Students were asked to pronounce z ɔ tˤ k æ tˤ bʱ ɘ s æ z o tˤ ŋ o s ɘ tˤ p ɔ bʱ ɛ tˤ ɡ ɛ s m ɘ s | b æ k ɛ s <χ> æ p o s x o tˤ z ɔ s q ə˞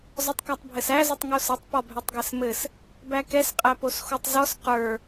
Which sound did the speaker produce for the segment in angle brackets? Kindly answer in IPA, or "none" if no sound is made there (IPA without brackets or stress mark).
qʼ